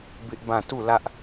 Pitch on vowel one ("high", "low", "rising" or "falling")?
high